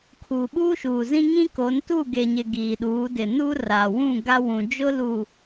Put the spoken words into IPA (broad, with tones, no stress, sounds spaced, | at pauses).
kʰ uː˨ ɓ uː˦ ʃ uː˨ z ĩ˦ ŋ ĩ˦ k o˨˦ n t u˦˨ ɡ e˨ ɲ ɪ˨ ɡ iː˨ ɗ uː˨˦ d ɪ˨ n u˦ r a˨ w ũ˦˨ ɡ a˦ w ũ˨ d͡ʒ ʊ˦ l u˨